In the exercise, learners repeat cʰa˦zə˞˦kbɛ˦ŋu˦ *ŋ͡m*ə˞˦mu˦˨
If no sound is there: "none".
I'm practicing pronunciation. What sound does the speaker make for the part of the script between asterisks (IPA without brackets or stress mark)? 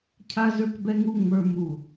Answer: ŋ͡m